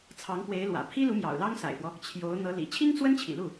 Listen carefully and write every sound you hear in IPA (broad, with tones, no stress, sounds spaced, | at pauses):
t͡sʰ ɑ˧˥ ŋ p w e˧˥ ɪ̯ l w ä̰˨˩ pʰ i˥ l u˧˥ m j ɑ̰˨˩ ʊ̯ l ɑ˥ ŋ s a̰˨˩ ɪ̯ f w ɔ˦ | t͡ɕʰ j o˧˥ ʊ̯ n̪ ɤ˧˥ l ḭ˨˩ t͡ɕʰ i˥ ŋ t͡s w ə˥ n t͡ɕʰ ḭ˨˩ l u˥˩